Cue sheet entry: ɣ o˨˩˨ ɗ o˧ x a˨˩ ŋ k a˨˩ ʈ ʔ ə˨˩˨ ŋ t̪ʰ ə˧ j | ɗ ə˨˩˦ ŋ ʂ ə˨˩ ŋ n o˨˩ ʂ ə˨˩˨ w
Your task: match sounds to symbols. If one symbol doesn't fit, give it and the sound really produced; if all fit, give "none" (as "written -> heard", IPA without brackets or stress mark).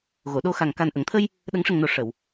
ʈ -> n